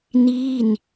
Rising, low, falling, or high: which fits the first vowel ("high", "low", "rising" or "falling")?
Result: falling